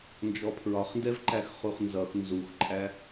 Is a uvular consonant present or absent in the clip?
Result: present